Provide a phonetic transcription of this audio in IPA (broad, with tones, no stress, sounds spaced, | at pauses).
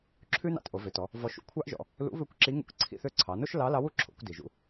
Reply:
ǁʰ ʉ˥ n ɑ̰˧ t ʔ o˩˧ v ø˩˧ t ɔ˩˧ | v ɔ˧ ʃ ṵ˧ kʷʰ ɑ˥ ʔ ʒ ɔ̰˩˧ | l ṵ˧˥ β ø˧˥ kʷ ǁ i˧˥ ŋ ṵ˧˥ k ǀʰ ḭ˧ θ ø˧˥ ǀʰ ɑ˩˧ n o˥ ʃ l ɑ˧˥ l ɑ˧˥ w u˩ ǁʰ o̰˩˧ kʷ d i˩ ʒ ṵ˧